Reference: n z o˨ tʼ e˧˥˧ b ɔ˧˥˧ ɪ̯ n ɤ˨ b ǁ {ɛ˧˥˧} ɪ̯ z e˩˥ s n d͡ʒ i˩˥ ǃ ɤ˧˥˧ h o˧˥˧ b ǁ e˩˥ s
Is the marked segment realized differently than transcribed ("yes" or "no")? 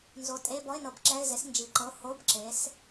no